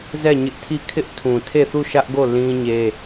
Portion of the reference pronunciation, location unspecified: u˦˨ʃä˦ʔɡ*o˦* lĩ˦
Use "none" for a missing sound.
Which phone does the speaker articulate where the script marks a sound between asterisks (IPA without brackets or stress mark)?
o˦˨